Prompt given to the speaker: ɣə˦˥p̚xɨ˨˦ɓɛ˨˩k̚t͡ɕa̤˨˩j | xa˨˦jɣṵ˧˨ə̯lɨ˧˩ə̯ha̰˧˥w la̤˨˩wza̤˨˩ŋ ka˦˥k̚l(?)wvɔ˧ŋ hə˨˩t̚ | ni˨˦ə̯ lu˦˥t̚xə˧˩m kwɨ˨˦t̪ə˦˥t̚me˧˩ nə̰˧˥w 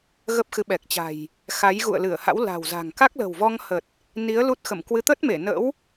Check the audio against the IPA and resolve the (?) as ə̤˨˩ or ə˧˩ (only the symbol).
ə̤˨˩